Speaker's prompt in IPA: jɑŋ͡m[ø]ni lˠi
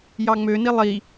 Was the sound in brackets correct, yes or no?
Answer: yes